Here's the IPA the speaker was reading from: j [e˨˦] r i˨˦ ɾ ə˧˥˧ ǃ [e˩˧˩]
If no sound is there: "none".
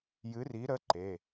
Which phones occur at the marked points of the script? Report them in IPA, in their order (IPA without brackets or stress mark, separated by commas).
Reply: ɨ˨˦, e˩˧˩